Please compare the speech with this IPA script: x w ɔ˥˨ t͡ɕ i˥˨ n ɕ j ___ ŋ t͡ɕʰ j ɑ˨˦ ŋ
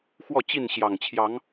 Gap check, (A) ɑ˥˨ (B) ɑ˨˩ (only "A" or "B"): B